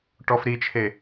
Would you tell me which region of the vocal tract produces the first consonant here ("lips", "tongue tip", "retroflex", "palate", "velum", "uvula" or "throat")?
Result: retroflex